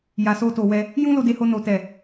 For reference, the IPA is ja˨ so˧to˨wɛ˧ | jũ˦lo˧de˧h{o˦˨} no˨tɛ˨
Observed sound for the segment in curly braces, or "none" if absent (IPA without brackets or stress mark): o˧